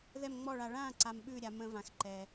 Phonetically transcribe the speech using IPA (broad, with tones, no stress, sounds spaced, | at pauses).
ð ɛ˥˨ m ŋ͡m ɔ˥˨ ɭ a˧ ɭ ã˥˨ ǀ a˧ m ɓ ʉ˥˨ ɾʲ a˧ m ə̃˧ v ã˧ x ǃ ɛ˧